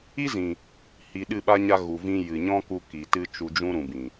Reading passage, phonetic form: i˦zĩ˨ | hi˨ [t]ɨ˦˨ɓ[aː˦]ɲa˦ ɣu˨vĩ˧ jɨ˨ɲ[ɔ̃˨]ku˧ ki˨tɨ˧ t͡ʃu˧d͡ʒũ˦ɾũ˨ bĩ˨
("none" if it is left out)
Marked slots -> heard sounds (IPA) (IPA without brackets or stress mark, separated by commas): ɗ, a˦, ɔ̃˦